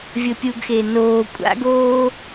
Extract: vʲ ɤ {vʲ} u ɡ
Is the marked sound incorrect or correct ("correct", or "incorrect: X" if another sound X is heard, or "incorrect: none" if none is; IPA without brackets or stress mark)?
incorrect: pʲ